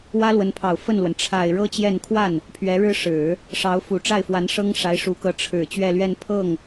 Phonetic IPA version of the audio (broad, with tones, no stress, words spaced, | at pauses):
wä˥lwə˧˥npʰɑ˨˩ʊ̯ fə˥˩nlwə˩n ʈ͡ʂʰa˨˩ɪ̯ ɻɤ˥t͡ɕjɛ˥˧n kʰwa˥˩n | pʰɥɛ˧˥ɻɻ̩˥ ʂɻ̩˨˩˦ | ʂɑ˧˥ʊ̯fu˨˩ ʈ͡ʂa˥˩ɪ̯fwa˧˥nʂɤ˥ŋ ʂa˧˥ɪ̯ʂu˧˥kɤ˧˥ ʈ͡ʂʰɻ̩˨˩ t͡ɕɥɛ˥˧lɥɛ˥˧n pʰɤ˥˩ŋ